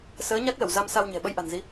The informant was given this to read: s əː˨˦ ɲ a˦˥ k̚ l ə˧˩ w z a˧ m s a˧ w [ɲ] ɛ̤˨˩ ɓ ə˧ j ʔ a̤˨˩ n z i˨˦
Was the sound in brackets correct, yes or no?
yes